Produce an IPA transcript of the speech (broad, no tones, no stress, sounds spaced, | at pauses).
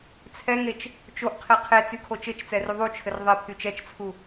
t͡sʰ ɛ ŋ e t͡ʃ | t͡ʃ o ʔ qʰ e qʰ e t͡s y kʰ o t͡ʃ ɘ t͡ʃ t͡s ɛ r y ðˤ u t͡ʃʰ ɘ r ðˤ e pʰ y t͡ʃ ɛ t͡ʃ t͡sʰ u